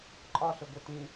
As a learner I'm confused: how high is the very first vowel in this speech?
low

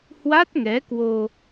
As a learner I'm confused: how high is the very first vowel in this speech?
low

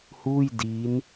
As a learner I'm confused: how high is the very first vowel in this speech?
high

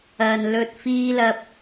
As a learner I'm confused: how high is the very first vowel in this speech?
low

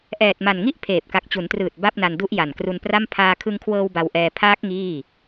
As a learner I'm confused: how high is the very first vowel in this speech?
mid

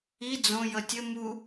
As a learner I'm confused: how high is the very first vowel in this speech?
high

